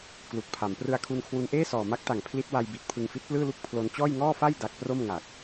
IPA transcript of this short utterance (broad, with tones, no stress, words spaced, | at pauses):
klu˨˩k̚pʰa˩˦m prɯ˧a̯kʰu˧nkʰwu˧n ʔeː˥˩sɔː˨˩ma˦˥k̚ta˨˩ŋ pʰli˦˥t̚wa˧jbi˨˩t̚ pʰɯ˧ŋfi˦˥t̚plɯː˥˩lu˥˩k̚ pʰlo˧n t͡ɕɔː˥˩jŋɔː˥˩ fa˥˩j da˦˥k̚ pro˥˩mŋa˨˩k̚